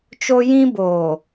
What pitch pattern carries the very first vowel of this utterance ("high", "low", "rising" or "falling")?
high